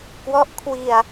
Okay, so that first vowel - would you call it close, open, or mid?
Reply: mid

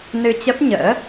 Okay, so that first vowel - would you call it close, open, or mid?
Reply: close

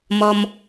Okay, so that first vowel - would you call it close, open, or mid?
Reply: mid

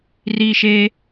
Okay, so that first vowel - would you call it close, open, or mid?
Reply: close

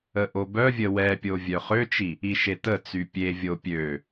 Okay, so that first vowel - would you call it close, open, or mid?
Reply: mid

